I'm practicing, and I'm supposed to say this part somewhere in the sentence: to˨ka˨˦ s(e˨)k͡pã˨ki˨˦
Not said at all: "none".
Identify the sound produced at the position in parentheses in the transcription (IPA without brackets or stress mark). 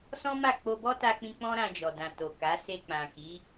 e˧